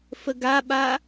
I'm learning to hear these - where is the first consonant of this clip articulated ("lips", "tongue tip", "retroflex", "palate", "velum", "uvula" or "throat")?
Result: lips